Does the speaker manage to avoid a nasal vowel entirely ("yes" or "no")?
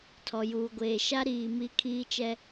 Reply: yes